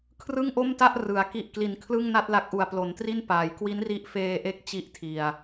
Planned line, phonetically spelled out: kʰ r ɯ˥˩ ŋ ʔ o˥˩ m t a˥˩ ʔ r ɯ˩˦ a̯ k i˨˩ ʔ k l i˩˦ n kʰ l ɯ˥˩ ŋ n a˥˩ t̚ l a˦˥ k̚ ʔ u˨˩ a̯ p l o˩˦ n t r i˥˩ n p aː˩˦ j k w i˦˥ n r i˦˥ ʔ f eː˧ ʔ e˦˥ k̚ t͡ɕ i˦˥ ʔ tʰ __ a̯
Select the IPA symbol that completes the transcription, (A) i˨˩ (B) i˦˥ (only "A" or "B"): A